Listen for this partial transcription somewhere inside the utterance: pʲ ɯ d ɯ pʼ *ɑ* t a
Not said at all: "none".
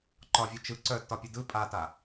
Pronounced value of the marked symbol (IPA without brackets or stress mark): a